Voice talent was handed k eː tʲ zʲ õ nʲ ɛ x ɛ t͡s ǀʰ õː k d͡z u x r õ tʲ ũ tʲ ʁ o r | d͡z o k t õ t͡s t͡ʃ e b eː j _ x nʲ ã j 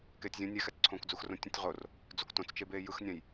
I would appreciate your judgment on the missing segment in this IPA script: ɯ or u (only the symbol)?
ɯ